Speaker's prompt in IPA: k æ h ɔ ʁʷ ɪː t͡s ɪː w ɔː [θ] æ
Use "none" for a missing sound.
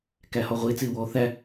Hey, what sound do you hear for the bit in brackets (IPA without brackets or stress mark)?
θ